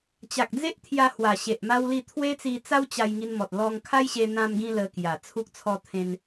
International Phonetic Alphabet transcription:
t͡ɕ a˨ k̚ d͡z e˦ ʔ t̪ʰ j a˧ h w a˨˩ ɕ e˨ ʔ m a˦ w l i˥˧ t̪ʰ w e˦ t͡s i˧ t͡s a˦ w t͡ɕ a˧ j ŋ i˧ n m ɔ˨ t̚ l ɔ˧ ŋ kʰ a˦ j ɕ e˧ n̪ ã˧ m ɡ ĩ˧ l ə˧ k j a˨˩ t͡sʰ u˦ k̚ t͡sʰ ɔ˥˧ t̪ʰ ẽ˦ n

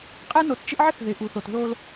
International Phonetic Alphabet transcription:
qʼ ɛ˦ n o˨˦ t t͡ʃ ɪ˦ ʔ ʕ ɪ˦ θ ð ɪ˨ ʔ u˨ θ o˨ t ð o˦ l

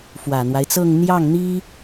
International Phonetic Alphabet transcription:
f w ä˨˩ n̪ w a˦ ɪ̯ t͡s ɤ˥˧ ŋ n̪ j ɑ˥˩ ŋ n̪ i˥

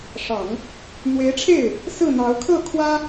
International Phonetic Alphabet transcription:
ʂ ɑ˨˩˦ ŋ | n̪ w e˧˥ ɪ̯ ʈ͡ʂʰ e˥˩ ɪ̯ | s ɹ̩˥˩ n̪ ɑ˧˥ ʊ̯ kʰ ɤ˥˩ kʰ w ä˥

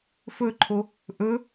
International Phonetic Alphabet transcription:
f ɵ ǃʰ o | ʔ ɵ

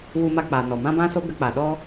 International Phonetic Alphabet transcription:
w u˧ m a˧ k͡p a˨ n ɔ˨ m ã˦ b ã˦ s o˦ ɡ ə˧ k͡p a˨ ɗ ɔ˦

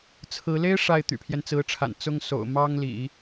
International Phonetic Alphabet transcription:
t͡sʰ ɹ̩˧˥ l e˥ ɪ̯ ʂ a˥˩ ɪ̯ t̪ y̰˨˩ pʰ j ɛ˦ n t͡s ɹ̩˧˥ ʈ͡ʂʰ a̰˨˩ n t͡s ʊ˥ ŋ s o̰˨˩ ʊ̯ m ɑ˥ ŋ l ḭ˨˩˦

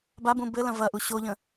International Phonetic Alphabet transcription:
b a b ũ b ɘ l ɐ̃ v ɐ ʔ u ɕ o ʎ ə̃

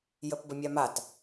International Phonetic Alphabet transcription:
j ə p b ə mʲ a m a t

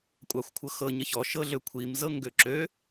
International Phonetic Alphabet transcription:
kʷʼ ɑ xʷ kʷʰ ɤ x ɤ ɲ ə ç ɔ ʃ ɤ ɮ ø kʷʰ i m z ɤ ŋ ɡ ø ǁ ø

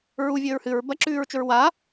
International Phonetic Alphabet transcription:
ɹ u vʲ ɵː ɹ h ɨ ɹ b ɐ ǁ ʉː ɹ t͡ʃ ɵ ɹ w a

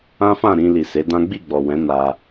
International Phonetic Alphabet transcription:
ã˦ f ã˦˨ ɾ ĩ˧ l i˨ s e˨˦ d ã˦ ɡ͡b i˦˨ ɡ͡b ɔ˨ w ɛ̃˨˦ n a˧

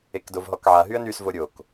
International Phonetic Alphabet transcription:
e k d o v ɦ ɔ k ʕ a ɦ y ə̯ n y s v o ɾʲ o k

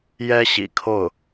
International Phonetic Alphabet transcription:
j ɛ˥ ɕ ḭ˨˩ kʰ o˥˩ ʊ̯

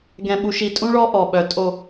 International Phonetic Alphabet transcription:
ɡ ɛ̃˨ ɓ u˨ ʃ i˨ tʼ ũ˦ ɭ ɔ˦ ʔ ɔ˨ ɓ œ˨ tʼ o˨

